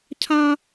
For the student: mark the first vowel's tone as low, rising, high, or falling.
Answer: high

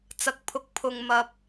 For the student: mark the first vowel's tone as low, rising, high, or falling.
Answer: low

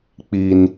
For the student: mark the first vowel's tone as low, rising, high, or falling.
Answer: high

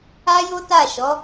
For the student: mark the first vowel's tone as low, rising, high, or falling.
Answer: high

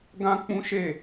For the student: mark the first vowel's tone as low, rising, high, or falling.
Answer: high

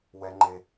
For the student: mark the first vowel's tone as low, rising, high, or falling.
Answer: low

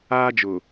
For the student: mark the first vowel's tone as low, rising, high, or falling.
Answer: high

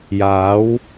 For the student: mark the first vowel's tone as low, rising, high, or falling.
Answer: rising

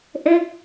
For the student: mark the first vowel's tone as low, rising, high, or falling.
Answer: falling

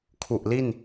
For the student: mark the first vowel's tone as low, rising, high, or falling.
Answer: low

